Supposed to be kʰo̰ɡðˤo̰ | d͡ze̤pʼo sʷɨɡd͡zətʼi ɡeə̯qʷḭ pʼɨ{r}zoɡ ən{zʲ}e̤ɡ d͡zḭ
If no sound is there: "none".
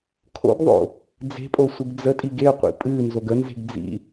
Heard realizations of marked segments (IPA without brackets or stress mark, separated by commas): n, z